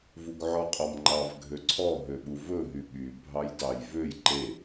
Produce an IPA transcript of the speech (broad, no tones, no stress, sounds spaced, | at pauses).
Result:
v u ɡ ʕ ɔ qʼ ɔ m ŋ͡ǃ ɑ v ɡʱ ø ǀʰ ɔ ɦ ø ɓ u v ɵ ɦ y ɓ y bʱ ɑ j d ɑ j v ø j ǃ e